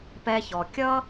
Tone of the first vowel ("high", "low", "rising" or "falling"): high